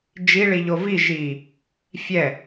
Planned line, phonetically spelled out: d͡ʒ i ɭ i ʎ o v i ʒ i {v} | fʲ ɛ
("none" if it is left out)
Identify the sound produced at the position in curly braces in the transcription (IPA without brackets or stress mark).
none